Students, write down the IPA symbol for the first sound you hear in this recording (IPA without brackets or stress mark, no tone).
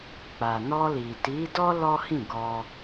k͡p